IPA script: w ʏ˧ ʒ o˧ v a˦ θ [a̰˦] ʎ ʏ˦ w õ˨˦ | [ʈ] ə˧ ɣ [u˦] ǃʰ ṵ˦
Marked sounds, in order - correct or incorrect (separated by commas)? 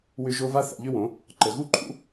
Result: incorrect, incorrect, correct